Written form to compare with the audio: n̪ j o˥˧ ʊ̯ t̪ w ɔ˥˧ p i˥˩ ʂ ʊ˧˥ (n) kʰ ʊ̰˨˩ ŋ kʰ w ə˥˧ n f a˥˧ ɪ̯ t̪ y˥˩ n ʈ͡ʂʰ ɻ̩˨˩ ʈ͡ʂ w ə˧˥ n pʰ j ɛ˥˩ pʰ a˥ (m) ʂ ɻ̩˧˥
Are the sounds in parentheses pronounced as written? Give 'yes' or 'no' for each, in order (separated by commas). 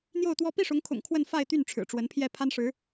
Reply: no, no